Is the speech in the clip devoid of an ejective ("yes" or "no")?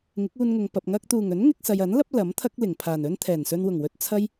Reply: yes